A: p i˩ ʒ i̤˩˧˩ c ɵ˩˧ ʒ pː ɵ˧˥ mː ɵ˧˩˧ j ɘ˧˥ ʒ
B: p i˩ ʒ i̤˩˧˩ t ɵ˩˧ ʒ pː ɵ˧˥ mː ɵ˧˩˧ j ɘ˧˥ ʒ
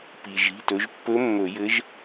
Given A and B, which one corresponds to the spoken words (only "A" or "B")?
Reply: B